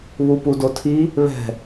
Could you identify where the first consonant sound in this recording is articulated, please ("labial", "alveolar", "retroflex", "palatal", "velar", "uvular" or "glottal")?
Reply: labial